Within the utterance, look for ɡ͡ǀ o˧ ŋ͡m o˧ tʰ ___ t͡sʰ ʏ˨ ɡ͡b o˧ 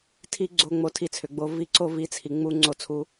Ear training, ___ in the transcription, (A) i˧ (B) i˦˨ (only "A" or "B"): A